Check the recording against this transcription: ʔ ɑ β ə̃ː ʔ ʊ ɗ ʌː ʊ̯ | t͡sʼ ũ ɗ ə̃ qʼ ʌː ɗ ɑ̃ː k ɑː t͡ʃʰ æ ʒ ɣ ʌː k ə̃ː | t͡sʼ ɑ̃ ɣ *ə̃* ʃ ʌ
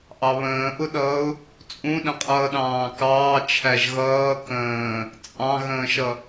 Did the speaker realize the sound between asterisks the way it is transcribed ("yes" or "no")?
no